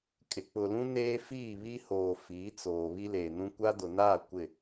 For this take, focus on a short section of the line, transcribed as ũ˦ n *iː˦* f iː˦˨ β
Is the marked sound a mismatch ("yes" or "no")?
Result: yes